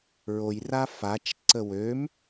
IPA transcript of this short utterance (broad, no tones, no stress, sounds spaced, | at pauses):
ɹ o j r a f a t͡ʃ ǀ ə w ø m